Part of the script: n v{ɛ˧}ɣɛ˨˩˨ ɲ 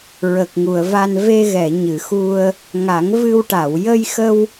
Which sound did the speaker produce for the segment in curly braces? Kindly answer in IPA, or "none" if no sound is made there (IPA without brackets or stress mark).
e˧